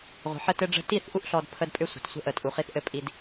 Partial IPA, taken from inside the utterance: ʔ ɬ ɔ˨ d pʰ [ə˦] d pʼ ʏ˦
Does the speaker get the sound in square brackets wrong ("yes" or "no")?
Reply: no